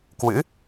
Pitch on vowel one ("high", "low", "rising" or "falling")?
rising